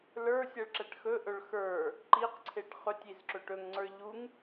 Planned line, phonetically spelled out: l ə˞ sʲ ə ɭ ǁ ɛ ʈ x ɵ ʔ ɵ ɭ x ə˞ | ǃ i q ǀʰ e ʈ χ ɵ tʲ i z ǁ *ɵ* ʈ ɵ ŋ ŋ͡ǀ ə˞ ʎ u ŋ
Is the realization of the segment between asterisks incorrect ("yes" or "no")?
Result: no